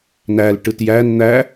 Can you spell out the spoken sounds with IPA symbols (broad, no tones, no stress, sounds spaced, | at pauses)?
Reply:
n æ l ʈ ɯ t j æ n n̪ æ